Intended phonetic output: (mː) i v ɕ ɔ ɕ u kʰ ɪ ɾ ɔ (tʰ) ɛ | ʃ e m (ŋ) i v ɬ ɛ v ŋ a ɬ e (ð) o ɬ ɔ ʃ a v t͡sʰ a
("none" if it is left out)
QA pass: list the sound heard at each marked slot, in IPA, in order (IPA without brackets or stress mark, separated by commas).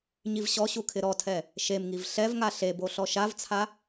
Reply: ɲ, tʰ, ŋ, b